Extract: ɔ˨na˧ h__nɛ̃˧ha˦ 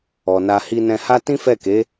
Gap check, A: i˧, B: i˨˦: A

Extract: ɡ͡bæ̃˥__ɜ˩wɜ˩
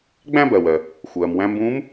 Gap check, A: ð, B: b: B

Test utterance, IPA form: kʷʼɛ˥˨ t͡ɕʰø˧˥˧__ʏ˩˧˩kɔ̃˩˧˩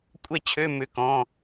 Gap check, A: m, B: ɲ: A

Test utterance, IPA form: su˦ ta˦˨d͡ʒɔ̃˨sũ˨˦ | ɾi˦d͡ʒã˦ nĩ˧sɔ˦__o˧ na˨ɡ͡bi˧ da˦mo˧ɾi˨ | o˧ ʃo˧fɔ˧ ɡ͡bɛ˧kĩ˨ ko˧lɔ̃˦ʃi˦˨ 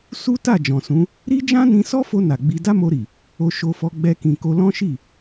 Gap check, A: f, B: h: A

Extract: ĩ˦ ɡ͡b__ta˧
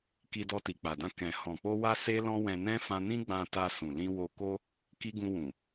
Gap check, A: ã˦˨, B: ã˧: B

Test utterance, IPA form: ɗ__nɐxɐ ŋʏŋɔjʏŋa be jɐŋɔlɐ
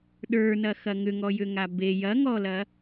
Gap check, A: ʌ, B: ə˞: B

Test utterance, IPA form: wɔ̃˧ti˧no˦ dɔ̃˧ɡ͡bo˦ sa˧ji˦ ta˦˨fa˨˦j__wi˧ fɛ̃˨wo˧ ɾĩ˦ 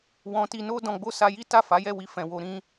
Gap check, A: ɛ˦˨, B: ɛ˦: A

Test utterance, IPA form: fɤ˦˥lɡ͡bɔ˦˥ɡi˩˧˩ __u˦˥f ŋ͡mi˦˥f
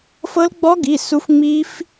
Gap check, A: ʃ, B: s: B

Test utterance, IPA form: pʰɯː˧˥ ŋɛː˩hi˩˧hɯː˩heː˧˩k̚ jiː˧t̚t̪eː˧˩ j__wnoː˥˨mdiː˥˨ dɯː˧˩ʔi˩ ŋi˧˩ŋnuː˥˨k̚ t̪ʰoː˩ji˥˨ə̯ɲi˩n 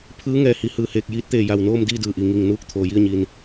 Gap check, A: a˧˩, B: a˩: A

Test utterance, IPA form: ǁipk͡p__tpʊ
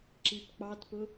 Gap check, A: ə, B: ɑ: B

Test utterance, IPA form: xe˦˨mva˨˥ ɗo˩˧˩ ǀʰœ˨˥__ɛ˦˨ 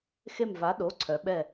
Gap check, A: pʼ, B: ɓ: B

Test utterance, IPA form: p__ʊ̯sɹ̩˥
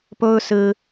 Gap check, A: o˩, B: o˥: B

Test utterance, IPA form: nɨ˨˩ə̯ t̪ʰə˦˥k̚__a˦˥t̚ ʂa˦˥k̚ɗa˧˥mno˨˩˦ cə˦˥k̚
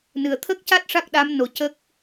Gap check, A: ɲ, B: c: B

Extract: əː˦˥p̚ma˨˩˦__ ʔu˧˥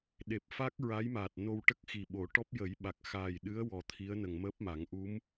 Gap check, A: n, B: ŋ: B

